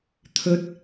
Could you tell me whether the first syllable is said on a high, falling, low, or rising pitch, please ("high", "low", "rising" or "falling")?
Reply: rising